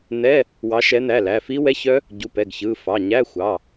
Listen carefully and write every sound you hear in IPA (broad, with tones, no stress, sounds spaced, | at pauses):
n̪ ɛ˧˥˧ | w ɑ˨˦ ʃ ɛ˨˦ n̪ æ˩˧˩ l æ˩˧˩ f i˦˥ w ɛ˧˥˧ ç œ˦˥ | ɟ u˩˧˩ p ɛ˩˧˩ ɡ ç ɯ˩˧˩ f ɑ˩˧˩ ɲ æ˧˥˧ xʷ ɑ˩˧˩